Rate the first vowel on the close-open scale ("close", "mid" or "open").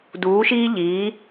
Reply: close